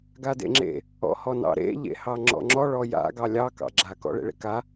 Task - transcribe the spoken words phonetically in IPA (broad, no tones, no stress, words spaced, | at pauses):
ɡadḛŋ͡ǁḛ | ɔ̰hɔnɑ̰ɾḛ ʎḛhɑŋ͡ǁɔ̰ŋ͡ǁɔ ɭɔja̰ ɡɑlʲɑ kɑ̰ɡ͡ǁa kɔ̰ɭḛɭḛka